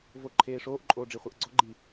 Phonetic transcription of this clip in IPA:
v o ǃʰ eː ʂ oː ʔ ǃʼ oː ɖ͡ʐ i χʷ ɛ ʔ ɡ͡ǀ ɔ ɡ͡ǃ i

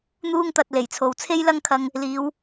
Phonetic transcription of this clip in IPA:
n̪ uː˥ ŋ t̪ ɐ˧ t̚ l e˨˩ j t͡sʰ o˨ w t͡sʰ e˥ j l ɐ˥ ŋ kʰ ɐ˧ ŋ | l iː˨˧ w

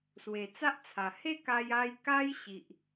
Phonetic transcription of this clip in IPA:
s w e˨˩ t͡s a˦ ʔ t͡sʰ a˨˩ h e˥˧ k a˧ j a˧ j k a˦ j ɕ i˨ ʔ

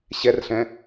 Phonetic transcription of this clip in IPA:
ɕ ɛ r ɬ ɛ̃

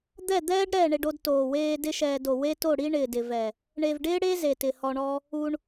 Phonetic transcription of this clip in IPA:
d̪ ɛ˦˨ d̪ ɛː˦ ɖ ɾ ɛ˦˨ ɳ e˧ ɖ o˧ d t oː˨ w eː˧ d ɪ˦ ʃ ɛː˧ d o˨ w e˦ t o˦˨ ɽ i˦ ɳ ɪː˨ d ɪ˨ v ɛ˨ | ɳ e˨ v ɖ ɪː˦ ɽ e˦ z e˨ t ɪ˨ h ɔ˧ ɳ ɔ˦ | u˧ ɳ

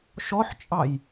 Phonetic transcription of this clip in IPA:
ʃ ɔ ħ t͡ʃʼ ɑ j

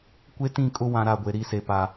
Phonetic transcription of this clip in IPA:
kʷ e˦ t ĩ˦˨ kʼ ʊ˦ w ã˨ ɾ a˦˨ ɡʷ e˨ ɾ i˦˨ s e˨ p a˨

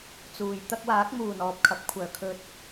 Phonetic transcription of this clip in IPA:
t͡s uː˨ j t̪ ɐ˧ k̚ w aː˨˥ k̚ m uː˨˩ n ɔː˨ p̚ kʰ ɐ˨˥ p̚ kʷʰ œː˨˩ kʰ ɵ˧ t̚

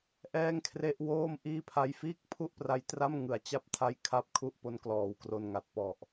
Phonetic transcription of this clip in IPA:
ʔ ɛː˥˩ ŋ kʰ r e˦˥ ʔ w oː˥˩ m ʔ iː˥˩ pʰ a˦˥ j f iː˥˩ k̚ pʰ u˥˩ ʔ p r a˧ j t r a˥˩ m ŋ ɯ˨˩ a̯ t͡ɕ a˦˥ p̚ tʰ a˦˥ j kʰ a˥˩ p̚ kʰ u˥˩ ʔ p o˦˥ n k l ɔː˨˩ w k r o˧ n ŋ a˨˩ t̚ p ɔ˨˩ ʔ

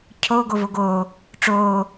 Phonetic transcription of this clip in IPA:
cʰ o ɡ o v o ɡ oː | ʈ͡ʂ oː

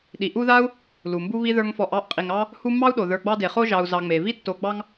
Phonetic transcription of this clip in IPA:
ɗ i˩ ʔ u˦ ð a˥ u̯ | l u˩ m b u˥ β i˥ ð ə˞˦ ŋ f ɔ˨ ʔ ɑ˥ ʔ qʼ i˩ ŋ ɑ˦ | h u˦ mː ɑ˥ u̯ ɗ o˩ ð ə˞˨ ɡ͡b ɑ˦ d e˩ χ o˦ ʒ ɑ˨ u̯ z ɑ˨ ŋ͡m e˩ v i˥ tː o˨ ɡ͡b ɑ˦ ŋ

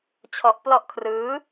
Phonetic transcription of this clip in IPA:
t͡ɕʰ ɔ˦˥ ʔ p l ɔ˦˥ ʔ kʰ r ɯː˦˥

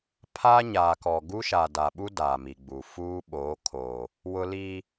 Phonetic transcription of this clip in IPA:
pʰ aː˦ ɲ aː˨ k ɔ˨ ɡ u˦ ʃ a˨ d a˨ ɓ u˦ d aː˨ m i˨ ɡ͡b u˨ f uː˦ ɓ oː˨˦ kʰ oː˨ | w ʊ˦ l i˦

